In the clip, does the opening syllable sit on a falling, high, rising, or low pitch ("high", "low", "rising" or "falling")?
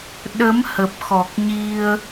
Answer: rising